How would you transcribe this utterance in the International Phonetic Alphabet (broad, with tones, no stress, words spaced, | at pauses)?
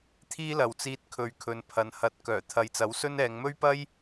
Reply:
t̪ʰiː˥lɐ˨wt͡siː˧t̚ kʰɵ˨˧ɥkʰɵ˨n pʰɐ˨n hɐ˨˥t̚ kœː˨˩ t̪ʰɐ˨˧jt͡sɐ˨˥wsɵ˥n ɛː˨˧ŋmɵ˥ɥpɐ˥j